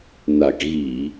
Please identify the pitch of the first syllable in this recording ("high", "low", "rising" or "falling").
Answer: low